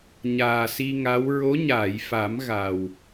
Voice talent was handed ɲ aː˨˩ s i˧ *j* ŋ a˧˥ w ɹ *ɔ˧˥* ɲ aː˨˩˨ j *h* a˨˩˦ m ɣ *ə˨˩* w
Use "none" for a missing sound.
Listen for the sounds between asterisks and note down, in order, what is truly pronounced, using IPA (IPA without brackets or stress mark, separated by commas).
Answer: none, o˧˥, f, a˨˩